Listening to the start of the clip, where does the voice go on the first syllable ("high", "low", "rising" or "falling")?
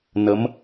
rising